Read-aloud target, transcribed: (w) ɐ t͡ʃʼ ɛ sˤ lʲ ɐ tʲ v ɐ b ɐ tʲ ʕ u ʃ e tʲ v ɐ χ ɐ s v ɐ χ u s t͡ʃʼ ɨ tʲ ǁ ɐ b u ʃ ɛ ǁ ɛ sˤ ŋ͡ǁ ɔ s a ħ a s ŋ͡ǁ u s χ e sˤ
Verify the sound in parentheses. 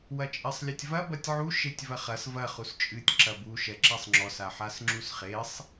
correct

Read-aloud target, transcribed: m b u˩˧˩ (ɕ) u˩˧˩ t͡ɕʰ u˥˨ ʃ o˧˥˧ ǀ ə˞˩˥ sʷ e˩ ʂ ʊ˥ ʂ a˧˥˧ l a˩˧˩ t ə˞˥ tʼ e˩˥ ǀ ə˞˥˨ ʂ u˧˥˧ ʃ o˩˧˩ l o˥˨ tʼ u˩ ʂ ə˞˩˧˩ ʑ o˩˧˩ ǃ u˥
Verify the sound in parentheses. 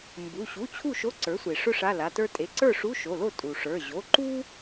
correct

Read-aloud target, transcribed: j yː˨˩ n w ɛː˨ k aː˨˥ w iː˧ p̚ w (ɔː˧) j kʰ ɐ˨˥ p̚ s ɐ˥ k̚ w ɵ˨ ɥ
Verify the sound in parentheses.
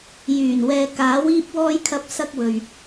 correct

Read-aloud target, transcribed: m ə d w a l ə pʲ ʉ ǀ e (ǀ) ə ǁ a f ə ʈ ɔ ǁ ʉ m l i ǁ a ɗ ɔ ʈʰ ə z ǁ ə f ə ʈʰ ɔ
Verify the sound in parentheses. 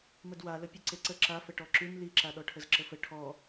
correct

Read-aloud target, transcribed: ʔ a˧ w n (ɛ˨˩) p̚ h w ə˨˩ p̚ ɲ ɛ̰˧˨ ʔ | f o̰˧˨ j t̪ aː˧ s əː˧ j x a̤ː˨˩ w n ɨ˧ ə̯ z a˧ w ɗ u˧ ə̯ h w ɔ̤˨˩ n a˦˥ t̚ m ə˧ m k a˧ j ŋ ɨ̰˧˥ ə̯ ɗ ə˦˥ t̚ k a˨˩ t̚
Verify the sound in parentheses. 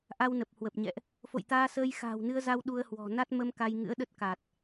incorrect: ə˨˩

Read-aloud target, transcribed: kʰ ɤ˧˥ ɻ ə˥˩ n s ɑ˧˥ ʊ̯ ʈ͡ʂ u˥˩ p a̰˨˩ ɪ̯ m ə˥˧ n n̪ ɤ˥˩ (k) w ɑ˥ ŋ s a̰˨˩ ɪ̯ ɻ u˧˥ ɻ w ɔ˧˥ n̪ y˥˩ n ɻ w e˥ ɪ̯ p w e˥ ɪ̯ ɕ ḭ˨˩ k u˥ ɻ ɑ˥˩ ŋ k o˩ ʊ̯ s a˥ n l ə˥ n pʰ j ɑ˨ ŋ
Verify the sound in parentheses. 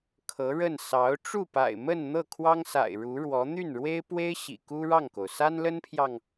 incorrect: kʰ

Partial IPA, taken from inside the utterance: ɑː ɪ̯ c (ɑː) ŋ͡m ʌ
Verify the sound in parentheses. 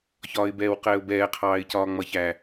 incorrect: ɒː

